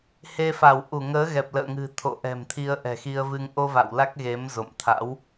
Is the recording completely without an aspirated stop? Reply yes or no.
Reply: no